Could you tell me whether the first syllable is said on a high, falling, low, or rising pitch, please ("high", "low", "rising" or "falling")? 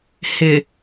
low